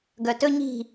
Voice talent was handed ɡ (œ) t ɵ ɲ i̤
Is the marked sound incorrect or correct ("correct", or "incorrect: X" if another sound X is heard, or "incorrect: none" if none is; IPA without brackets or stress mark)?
correct